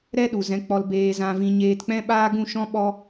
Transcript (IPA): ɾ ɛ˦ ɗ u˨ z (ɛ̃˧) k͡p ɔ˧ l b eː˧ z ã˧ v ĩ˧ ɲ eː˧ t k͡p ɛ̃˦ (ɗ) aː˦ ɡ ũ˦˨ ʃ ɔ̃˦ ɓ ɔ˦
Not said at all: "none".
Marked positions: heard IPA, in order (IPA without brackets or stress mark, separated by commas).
ɛ̃˨˦, ɓ